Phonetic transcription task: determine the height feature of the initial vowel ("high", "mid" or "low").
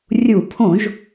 high